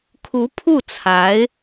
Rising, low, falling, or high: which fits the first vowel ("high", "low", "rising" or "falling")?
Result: rising